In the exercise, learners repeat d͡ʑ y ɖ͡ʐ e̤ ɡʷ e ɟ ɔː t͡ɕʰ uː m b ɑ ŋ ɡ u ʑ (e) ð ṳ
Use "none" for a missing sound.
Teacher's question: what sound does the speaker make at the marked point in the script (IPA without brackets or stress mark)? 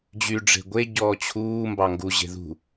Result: e̤